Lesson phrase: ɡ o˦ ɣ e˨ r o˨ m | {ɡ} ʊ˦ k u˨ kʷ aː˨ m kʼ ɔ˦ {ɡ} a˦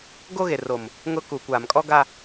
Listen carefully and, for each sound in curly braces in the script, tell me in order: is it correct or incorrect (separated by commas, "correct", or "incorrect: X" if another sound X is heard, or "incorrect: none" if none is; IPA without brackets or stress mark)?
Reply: incorrect: ŋ, correct